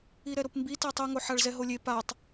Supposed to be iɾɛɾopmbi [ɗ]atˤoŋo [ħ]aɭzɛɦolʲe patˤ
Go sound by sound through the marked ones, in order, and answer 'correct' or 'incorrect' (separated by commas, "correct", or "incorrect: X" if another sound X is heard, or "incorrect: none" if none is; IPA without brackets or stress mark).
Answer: incorrect: t, correct